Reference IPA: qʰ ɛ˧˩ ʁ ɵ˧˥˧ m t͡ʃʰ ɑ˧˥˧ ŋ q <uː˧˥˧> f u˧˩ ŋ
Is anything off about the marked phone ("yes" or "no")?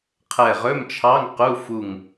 yes